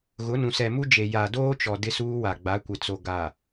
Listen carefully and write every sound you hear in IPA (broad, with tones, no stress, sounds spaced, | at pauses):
ɣ ʊ˨˦ n ũ˨ s ɛ˨ m u˦ d͡ʒ e˨ j a˨ d oː˦ t͡ʃ ɔ˨ d ɪ˦ s uː˦ w a˨ ɡ͡b a˨˦ kʷ ɪ˨ t͡s o˨ ɡ a˨